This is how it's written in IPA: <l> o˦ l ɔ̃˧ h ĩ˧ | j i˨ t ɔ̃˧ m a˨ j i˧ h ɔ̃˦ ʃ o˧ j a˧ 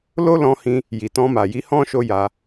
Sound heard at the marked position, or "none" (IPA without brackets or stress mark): l